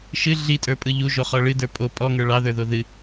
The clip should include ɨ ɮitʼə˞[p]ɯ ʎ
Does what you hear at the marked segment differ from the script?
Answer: yes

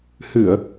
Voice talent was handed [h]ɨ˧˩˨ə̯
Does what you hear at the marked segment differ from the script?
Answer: no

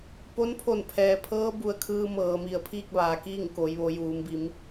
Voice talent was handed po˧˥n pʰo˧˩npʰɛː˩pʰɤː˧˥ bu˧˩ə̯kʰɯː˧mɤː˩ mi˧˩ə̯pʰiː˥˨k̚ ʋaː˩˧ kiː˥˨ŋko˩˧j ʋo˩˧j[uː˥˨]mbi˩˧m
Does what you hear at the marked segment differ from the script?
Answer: yes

